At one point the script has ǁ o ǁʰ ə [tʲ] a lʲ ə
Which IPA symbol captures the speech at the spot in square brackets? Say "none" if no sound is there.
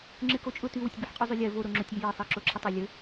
tˤ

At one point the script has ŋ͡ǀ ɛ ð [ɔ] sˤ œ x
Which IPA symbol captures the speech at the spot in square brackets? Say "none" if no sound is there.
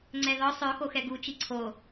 ɔ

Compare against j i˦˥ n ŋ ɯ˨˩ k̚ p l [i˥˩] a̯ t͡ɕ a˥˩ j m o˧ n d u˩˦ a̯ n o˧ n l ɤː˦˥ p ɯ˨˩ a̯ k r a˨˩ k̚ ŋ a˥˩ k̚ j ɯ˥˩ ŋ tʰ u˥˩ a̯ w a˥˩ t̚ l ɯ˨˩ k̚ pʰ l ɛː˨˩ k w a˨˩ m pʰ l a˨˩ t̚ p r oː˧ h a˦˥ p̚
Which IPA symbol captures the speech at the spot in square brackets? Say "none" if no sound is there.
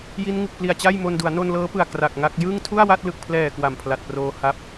i˨˩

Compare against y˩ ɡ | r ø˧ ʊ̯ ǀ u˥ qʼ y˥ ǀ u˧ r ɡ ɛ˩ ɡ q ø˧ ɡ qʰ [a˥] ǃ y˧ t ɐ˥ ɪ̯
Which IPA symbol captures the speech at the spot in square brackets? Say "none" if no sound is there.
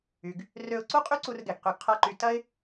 a˥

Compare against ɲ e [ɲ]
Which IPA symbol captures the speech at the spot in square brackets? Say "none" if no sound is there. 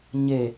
none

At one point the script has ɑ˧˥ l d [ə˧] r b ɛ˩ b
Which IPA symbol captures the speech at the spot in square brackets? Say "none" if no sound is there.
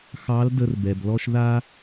ə˧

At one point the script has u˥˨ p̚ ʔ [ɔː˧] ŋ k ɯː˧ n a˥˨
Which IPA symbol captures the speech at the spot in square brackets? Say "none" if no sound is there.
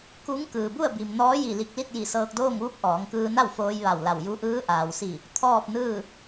ɔː˩˧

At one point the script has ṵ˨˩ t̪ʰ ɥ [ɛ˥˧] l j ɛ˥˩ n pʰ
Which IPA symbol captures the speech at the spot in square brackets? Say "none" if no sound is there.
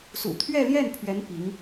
ɛ˥˧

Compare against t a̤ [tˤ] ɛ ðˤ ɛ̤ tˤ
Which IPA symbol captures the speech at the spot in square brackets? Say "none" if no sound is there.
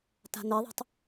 n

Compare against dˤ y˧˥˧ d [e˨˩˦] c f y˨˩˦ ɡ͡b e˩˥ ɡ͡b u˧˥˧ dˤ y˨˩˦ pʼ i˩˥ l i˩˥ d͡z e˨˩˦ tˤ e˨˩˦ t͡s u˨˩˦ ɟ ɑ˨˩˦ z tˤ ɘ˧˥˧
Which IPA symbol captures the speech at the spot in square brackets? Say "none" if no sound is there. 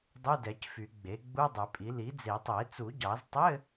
ɛ˨˩˦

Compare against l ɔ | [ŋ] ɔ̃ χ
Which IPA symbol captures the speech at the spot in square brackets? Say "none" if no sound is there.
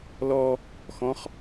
x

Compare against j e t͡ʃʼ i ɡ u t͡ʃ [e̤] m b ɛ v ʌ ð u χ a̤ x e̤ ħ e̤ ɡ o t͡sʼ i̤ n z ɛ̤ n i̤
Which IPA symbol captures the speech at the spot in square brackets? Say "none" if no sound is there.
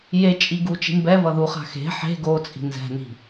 i̤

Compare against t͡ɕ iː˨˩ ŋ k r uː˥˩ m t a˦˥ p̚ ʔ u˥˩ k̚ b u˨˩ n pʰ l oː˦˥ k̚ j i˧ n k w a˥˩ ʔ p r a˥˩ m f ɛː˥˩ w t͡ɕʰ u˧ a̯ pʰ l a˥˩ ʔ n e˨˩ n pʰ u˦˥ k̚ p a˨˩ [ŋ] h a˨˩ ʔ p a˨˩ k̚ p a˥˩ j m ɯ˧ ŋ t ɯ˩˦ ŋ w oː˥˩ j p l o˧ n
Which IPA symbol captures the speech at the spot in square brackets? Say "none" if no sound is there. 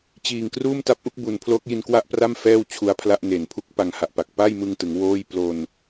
ŋ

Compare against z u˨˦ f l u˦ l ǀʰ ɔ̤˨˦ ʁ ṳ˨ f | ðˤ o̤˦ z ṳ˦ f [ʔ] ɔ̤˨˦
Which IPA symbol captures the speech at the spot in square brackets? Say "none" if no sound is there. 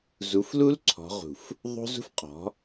qʼ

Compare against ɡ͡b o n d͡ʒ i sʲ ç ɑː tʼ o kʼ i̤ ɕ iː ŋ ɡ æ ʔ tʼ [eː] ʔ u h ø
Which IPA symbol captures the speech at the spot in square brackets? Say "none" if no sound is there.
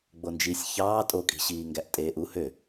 eː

